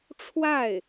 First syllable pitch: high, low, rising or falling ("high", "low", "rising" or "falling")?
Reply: falling